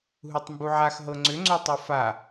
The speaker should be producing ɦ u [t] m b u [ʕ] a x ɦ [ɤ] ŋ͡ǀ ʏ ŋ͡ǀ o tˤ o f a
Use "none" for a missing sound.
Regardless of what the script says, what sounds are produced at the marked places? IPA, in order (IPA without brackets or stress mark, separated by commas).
tˤ, ʕ, ɤ